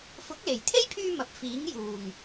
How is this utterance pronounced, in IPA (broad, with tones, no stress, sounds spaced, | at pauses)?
f ʊ˨˥ k̚ l e˨˩ j t̪ʰ e˥ j pʰ yː˧ m ɐ˨ p̚ f iː˨˥ ŋ j uː˨˩ ŋ